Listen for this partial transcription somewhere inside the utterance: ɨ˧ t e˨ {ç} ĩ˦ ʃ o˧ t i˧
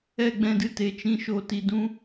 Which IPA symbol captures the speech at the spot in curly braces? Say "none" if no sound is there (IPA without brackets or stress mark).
t͡ʃ